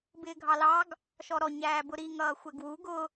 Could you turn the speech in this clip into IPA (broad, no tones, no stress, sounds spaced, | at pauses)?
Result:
b ɪː ɡʱ ɑ l ɑ ɡ | ʃ ɔ ɾ ɔ ɲ æː b ʊ ɾ i ŋ ʌː xʷ ɛ ɡ w u ɡ ʊ